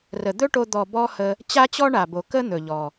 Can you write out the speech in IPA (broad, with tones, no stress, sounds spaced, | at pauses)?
r ə˨ d̪ ɵ˦ ʈ o˧ d̪ ɔ˨ b ɔ˦ h ə˧ | t͡ɕ a˦ t͡ɕ ɔ˦ ɳ a˨ b o˨ k ə˦ n̪ ɵ˨ ʎ ɔ˨